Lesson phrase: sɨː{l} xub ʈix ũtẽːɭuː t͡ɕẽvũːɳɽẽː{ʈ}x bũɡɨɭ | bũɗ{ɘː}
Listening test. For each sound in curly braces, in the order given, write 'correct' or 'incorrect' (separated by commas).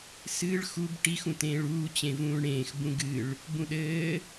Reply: incorrect, incorrect, correct